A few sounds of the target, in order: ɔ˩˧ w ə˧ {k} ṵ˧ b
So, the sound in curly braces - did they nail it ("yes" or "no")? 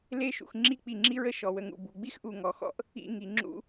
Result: no